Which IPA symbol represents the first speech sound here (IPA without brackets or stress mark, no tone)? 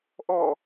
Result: ʔ